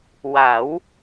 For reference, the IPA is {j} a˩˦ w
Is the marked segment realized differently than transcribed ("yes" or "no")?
yes